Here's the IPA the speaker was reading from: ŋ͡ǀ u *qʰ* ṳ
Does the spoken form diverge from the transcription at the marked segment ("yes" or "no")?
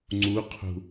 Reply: no